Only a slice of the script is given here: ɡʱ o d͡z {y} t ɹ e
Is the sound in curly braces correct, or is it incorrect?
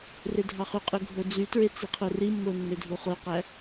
correct